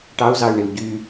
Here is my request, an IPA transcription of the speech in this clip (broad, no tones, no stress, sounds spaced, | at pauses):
ʈ ɑ u̯ z ɑ y̯ ɳ e u̯ ɟ y